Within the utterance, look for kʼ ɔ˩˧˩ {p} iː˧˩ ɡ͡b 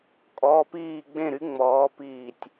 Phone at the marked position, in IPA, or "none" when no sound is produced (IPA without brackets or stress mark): p